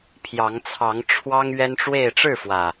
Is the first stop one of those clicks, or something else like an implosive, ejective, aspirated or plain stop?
aspirated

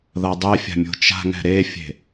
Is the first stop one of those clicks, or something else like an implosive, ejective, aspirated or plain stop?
plain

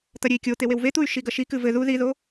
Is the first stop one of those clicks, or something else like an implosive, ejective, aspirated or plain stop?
plain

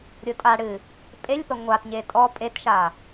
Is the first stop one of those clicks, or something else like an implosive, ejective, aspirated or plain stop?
ejective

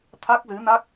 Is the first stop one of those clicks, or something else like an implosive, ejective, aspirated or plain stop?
aspirated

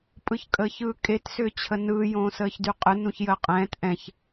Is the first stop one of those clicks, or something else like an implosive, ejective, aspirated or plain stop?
ejective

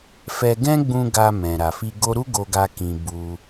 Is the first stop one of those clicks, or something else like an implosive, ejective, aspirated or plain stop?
plain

